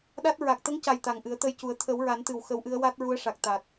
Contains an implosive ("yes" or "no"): yes